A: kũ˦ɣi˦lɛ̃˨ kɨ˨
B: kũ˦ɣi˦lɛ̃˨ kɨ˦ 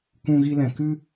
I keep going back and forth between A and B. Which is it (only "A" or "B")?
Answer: B